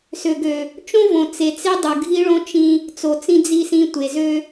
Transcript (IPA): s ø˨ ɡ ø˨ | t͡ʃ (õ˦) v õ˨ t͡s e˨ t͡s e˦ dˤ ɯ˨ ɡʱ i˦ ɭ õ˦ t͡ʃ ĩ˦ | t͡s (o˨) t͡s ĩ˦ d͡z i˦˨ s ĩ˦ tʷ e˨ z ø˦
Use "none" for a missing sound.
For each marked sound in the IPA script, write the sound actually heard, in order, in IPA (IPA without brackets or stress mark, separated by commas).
õ˦, o˨